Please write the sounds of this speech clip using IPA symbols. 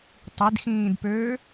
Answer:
tˤ i d x ĩː d p øː

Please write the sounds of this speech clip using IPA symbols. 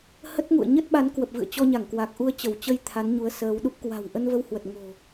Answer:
h ə˦˥ t̚ ŋ ṵ˧˨ ə̯ ɲ ə˦˥ t̚ ɓ a˨˦ n k w ə˨˩ p̚ v ɨ̰˧˨ ə̯ t͡ɕ ɔ˧ ɲ a˧˩ ŋ k w a˨˩ k̚ ʔ u˧ ə̯ t͡ɕ ə˧˩ w t͡ɕ ə˧ j t̪ʰ a˨˦ n ɲ u˨˦ ə̯ s əː˨˦ w ɗ u˦˥ p̚ k w a̤˨˩ w ʔ ə˧ n v ə˧ w h w ə˨˩ t̚ ŋ o̤˨˩

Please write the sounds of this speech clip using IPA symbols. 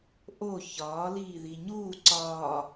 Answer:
ʔ o ç ɒː l iː ð i ɲ uː ǀ ɒː

